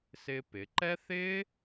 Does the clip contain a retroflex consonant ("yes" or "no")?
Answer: no